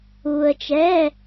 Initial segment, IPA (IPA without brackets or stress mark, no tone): uː